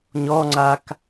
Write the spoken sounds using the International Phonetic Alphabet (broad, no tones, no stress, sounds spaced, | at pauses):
ɲ ɔ ŋ͡ǀ a k